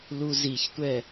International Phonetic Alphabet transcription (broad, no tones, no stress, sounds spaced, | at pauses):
l u z i ç tʷ ɛ